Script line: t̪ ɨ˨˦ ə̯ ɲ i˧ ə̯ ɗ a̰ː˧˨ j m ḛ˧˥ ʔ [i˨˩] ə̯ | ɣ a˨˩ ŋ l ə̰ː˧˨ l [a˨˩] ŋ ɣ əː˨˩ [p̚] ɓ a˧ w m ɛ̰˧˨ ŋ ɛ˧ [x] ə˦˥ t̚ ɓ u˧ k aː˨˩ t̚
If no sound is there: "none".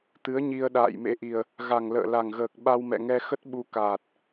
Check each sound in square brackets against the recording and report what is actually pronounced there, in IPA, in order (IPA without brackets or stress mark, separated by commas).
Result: i˨˩, a˨˩, k̚, x